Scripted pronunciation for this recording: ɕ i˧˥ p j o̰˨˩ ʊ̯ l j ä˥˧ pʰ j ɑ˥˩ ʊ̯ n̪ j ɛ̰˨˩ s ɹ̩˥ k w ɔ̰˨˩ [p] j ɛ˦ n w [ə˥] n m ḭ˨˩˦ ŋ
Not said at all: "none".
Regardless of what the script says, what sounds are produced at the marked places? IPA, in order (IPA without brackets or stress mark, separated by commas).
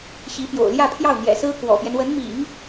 p, ə˧˥